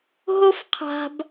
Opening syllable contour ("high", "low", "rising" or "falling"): high